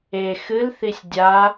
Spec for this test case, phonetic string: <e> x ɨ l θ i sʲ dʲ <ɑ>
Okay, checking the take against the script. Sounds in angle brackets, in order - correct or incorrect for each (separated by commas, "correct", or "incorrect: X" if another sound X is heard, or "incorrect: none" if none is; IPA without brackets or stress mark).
correct, incorrect: a